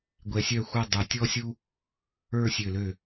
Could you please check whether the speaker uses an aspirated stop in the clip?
no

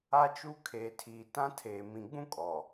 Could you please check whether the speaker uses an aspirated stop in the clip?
yes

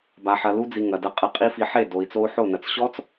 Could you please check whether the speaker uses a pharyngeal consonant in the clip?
yes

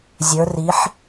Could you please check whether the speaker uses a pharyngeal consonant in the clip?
yes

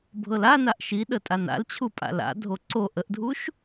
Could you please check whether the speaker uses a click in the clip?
yes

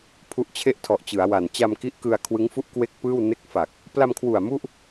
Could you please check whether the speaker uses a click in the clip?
no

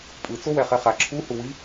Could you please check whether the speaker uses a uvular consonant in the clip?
yes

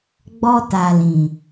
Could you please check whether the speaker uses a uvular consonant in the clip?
no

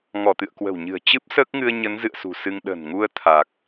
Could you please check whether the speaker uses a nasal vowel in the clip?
no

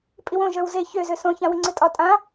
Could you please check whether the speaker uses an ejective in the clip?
yes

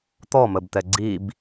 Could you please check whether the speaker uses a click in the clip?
yes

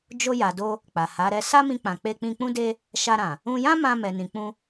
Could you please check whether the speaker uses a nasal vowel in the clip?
yes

